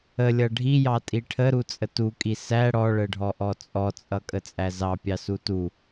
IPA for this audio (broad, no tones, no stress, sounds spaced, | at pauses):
ə lʲ ʌ ɖʱ i j ɑ tʼ i ʈʰ ə ɾ u t͡sʼ ə t u kʼ i s æ ɽ ɔ ɭ ə ɖʱ ɔ ʔ ɔ t͡sʼ ɔ t͡sʼ ʌ kʼ ə t͡sʼ æ z ɑ pʲ ɑ s u t u